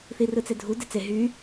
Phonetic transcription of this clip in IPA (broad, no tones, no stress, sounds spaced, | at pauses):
θ i r ɯ t͡s e dʱ u d e t͡s e ɦ y